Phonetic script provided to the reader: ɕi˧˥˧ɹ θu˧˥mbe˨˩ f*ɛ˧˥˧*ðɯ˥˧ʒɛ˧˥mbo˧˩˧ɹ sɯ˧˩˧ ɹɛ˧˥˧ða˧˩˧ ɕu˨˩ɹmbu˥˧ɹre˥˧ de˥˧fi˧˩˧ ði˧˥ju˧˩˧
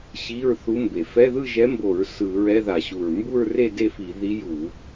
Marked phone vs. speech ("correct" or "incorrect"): correct